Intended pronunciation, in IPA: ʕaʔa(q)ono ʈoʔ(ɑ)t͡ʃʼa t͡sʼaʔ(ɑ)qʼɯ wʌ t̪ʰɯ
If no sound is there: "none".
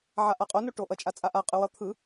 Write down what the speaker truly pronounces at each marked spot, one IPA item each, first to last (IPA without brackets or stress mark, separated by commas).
qʼ, ʌ, a